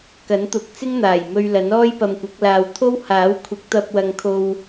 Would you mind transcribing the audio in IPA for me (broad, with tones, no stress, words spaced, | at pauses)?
kɐ˨˥nt̪ʊ˨˥k̚t͡sɪ˥ŋn̪aː˨˩j mɵ˧ɥlɐ˨˥n ɔː˥jpɐ˧mkʷɐ˨˥k̚laː˧w t̪ʰo˥w haː˨˥wkʷʰɪ˨˥k̚t̪ɐ˧p̚ wɐ˧ŋkʰo˧w